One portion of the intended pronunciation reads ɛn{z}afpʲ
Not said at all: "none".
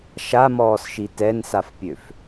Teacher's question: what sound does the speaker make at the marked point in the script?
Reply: s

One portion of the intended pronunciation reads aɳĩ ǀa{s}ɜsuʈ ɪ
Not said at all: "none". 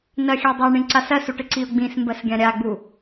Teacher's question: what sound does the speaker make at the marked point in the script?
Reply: s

